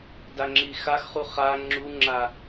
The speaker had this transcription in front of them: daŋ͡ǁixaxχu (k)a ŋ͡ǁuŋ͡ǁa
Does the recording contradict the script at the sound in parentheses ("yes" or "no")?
yes